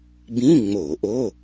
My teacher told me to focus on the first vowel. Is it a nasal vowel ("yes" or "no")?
yes